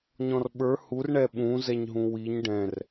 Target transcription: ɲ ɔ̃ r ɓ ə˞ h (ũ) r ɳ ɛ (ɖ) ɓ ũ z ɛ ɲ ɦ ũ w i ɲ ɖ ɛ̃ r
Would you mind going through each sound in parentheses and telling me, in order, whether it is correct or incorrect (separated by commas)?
incorrect, incorrect